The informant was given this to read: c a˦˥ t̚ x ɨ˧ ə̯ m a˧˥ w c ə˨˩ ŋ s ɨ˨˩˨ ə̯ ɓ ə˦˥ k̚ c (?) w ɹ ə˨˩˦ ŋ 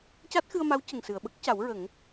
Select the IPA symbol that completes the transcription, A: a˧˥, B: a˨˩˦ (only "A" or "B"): B